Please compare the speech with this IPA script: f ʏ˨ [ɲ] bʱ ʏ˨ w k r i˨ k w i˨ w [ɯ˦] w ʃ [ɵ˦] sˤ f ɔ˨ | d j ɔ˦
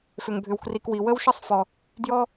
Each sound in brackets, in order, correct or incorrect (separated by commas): incorrect, incorrect, incorrect